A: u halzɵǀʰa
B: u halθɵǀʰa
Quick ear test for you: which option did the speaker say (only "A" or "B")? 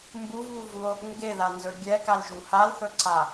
B